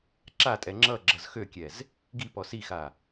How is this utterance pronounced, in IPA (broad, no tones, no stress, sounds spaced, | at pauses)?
ǁ a tʼ ɛ ŋ͡ǁ ʌ ɡ͡ǁ ʌ z x ø kʲ ɛ z | ɡ i p ɔ s i x a